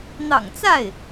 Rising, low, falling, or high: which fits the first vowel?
low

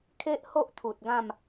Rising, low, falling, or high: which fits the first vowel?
high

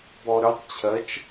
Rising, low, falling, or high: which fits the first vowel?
low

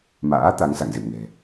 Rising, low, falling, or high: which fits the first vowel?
rising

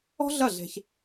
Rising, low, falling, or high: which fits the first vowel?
high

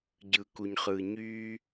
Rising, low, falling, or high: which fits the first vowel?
low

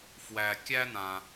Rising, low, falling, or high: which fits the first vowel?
low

